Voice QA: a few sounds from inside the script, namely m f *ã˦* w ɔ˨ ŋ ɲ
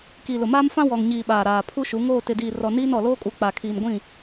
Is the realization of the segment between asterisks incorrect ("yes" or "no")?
no